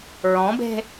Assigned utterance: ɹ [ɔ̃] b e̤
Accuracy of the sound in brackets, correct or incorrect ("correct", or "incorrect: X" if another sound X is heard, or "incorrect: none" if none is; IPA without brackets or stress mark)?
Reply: correct